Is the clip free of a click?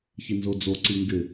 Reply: no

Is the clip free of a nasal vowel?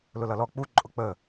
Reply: yes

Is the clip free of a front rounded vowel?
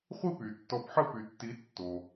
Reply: no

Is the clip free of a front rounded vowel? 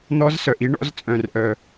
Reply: no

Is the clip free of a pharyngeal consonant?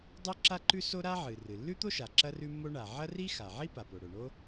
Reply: no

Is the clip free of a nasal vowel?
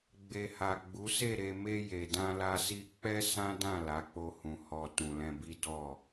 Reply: no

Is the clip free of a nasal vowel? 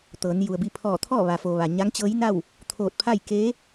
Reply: yes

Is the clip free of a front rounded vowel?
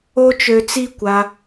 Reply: no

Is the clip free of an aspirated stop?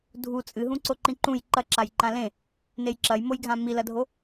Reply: yes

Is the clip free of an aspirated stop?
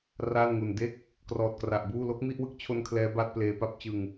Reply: no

